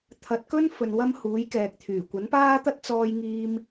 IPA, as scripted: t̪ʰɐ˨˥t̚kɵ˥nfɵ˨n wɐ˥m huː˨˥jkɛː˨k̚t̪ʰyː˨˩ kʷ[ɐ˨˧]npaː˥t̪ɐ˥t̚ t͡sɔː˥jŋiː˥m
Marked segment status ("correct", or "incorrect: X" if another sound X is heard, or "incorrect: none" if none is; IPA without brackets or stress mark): incorrect: ɐ˨˥